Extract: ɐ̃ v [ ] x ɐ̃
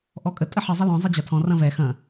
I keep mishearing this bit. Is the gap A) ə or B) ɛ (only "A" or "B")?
B